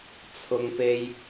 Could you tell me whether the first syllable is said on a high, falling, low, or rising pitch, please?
low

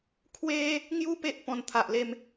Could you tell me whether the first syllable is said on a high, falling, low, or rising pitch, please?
high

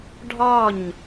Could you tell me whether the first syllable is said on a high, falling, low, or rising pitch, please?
falling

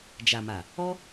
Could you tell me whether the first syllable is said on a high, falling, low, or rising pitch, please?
low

